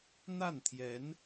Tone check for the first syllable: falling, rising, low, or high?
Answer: falling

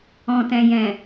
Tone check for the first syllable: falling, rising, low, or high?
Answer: low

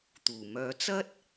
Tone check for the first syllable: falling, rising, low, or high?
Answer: low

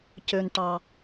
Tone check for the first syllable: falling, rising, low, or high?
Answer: high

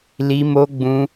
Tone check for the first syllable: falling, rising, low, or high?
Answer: high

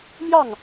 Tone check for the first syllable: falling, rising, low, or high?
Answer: falling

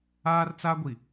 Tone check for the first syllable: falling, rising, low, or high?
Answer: high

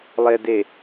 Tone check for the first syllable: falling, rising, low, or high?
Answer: low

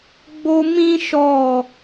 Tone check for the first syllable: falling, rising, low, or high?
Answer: high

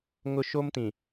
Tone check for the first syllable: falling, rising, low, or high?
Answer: high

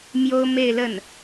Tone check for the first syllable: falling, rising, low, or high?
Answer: high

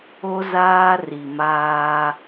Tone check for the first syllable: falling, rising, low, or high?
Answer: high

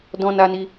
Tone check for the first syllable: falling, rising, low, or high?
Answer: high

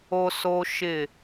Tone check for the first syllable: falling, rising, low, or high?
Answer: high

